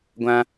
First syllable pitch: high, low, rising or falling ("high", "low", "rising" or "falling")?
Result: high